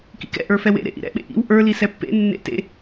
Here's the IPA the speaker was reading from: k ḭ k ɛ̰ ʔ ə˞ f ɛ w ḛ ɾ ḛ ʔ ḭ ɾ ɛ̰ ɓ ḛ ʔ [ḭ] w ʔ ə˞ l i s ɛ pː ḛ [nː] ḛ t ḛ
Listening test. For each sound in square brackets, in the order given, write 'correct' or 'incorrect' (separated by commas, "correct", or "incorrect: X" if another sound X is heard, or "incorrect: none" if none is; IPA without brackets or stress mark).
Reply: correct, correct